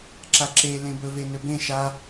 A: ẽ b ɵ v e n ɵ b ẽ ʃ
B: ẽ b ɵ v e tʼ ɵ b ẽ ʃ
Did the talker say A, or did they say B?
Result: A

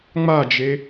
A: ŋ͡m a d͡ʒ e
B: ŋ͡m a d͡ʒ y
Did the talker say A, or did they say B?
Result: A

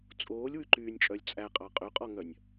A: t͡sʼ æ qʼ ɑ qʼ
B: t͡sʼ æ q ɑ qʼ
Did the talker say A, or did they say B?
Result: A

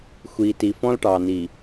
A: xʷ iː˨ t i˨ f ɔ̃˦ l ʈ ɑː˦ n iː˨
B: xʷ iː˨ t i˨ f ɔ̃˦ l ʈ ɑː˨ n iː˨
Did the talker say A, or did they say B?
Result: B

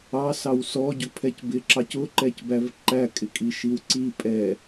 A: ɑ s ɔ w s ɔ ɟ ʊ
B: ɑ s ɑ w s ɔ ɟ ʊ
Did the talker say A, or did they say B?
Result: B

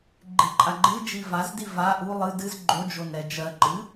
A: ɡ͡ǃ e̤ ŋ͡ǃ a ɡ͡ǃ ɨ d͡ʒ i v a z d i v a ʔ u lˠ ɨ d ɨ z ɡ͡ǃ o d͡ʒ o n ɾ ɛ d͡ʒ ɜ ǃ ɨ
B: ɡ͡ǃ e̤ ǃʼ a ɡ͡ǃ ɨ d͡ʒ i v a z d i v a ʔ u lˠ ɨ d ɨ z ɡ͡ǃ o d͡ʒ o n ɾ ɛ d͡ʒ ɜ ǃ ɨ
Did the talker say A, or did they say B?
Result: B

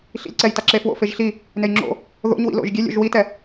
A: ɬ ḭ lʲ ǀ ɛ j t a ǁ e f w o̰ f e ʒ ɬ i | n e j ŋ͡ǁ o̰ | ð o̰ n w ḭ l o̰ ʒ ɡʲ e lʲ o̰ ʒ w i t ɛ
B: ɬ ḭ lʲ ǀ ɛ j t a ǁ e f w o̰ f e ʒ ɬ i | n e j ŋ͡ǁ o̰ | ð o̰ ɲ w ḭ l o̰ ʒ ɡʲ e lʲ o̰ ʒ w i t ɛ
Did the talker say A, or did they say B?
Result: B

